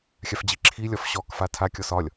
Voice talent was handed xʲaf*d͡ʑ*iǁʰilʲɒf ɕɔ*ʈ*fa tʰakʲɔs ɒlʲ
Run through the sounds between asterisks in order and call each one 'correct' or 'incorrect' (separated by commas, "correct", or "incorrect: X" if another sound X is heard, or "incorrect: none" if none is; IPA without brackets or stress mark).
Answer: correct, incorrect: k